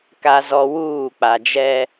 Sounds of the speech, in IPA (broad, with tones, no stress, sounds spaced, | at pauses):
k a˨ z ɔ˨ w uː˦˨ k͡p a˨ d͡ʒ ɛ˦